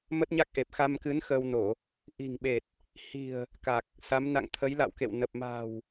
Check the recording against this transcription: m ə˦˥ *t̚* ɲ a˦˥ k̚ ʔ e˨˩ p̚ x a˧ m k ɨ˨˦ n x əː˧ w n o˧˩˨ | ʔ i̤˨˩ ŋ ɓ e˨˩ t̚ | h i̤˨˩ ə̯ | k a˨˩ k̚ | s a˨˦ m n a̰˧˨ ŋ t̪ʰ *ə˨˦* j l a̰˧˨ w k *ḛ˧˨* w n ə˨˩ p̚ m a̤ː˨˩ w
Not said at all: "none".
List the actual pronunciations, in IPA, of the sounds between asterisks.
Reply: t̚, ə˨˦, ḛ˧˨

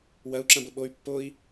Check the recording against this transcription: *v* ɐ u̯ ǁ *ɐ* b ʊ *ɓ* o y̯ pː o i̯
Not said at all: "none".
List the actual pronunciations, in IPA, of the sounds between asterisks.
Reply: w, ɐ̃, ɓ

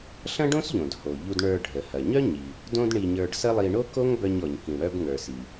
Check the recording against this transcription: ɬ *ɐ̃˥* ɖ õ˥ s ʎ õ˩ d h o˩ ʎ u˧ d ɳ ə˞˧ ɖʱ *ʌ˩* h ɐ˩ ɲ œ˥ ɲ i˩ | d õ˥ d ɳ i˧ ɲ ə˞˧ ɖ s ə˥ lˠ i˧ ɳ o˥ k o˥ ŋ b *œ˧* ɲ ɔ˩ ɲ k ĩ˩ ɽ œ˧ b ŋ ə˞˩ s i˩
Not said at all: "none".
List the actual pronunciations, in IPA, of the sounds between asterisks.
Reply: ɐ̃˥, ə˩, œ˧

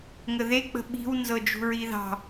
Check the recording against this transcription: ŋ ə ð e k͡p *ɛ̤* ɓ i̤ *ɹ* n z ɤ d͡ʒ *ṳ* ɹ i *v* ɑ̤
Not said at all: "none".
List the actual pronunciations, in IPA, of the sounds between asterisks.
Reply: ə̤, w, ṳ, ð

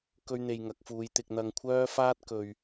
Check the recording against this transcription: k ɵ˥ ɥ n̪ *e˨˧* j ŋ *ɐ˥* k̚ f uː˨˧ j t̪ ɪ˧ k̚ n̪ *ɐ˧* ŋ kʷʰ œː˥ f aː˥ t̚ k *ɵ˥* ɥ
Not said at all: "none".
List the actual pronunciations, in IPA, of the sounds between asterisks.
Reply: e˧, ɐ˨˥, ɐ˧, ɵ˨

